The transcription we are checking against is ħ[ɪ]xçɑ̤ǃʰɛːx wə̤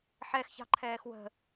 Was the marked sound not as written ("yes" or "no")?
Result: yes